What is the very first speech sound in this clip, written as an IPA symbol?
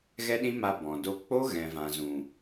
ɣ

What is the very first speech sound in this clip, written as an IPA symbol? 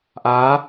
ʔ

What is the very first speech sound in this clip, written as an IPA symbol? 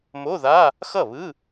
m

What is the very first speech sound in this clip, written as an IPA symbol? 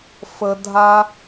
f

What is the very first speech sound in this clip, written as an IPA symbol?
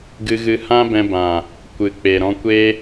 ɡ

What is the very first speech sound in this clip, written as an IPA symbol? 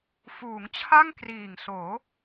f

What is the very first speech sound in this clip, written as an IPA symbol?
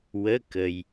w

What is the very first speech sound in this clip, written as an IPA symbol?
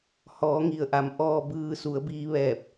h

